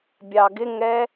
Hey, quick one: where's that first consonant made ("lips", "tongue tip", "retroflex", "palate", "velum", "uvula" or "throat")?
lips